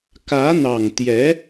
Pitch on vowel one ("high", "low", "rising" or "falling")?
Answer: rising